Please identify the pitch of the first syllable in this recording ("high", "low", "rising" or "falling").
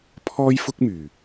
high